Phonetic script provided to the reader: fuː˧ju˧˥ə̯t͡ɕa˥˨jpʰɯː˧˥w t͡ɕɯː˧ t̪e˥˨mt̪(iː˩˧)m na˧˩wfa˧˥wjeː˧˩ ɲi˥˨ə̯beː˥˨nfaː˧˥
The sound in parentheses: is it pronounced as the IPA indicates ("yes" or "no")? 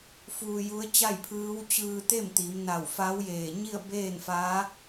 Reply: yes